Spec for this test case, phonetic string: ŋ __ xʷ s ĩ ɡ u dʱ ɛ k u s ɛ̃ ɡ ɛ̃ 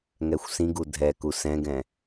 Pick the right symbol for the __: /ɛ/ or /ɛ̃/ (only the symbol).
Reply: ɛ